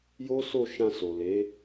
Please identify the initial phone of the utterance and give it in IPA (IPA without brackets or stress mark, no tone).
j